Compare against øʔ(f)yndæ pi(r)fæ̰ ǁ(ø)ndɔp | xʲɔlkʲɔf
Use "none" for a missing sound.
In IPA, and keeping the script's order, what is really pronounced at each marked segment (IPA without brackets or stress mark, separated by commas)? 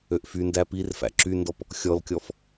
f, r, y